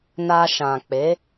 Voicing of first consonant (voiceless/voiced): voiced